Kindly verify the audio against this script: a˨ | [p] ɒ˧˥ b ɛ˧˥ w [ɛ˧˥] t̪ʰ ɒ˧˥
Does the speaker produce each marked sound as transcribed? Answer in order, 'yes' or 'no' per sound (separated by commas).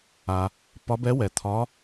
yes, no